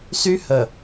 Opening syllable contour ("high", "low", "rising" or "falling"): high